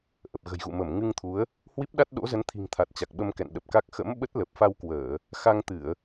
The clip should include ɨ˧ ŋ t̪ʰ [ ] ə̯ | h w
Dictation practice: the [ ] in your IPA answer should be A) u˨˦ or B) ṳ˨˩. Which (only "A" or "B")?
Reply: A